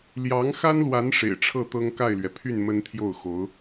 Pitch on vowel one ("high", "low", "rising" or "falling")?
rising